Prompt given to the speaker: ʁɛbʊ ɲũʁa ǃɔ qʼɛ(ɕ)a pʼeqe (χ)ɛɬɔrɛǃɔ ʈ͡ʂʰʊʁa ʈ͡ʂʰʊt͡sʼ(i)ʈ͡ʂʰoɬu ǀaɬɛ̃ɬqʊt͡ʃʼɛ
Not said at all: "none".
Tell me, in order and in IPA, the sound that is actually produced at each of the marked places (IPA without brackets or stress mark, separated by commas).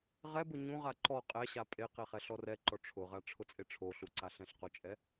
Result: ɕ, χ, e